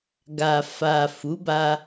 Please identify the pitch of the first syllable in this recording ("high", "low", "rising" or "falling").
low